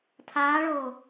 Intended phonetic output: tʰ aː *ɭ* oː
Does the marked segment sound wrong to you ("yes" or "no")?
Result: no